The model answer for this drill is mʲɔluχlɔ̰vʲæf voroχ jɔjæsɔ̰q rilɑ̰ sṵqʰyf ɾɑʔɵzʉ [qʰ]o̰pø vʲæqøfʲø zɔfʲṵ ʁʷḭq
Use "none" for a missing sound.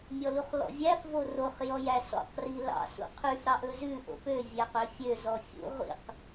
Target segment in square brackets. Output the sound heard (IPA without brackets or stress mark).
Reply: ʔ